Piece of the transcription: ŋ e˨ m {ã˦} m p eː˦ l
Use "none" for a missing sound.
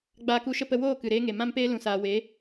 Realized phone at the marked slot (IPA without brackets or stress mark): ã˦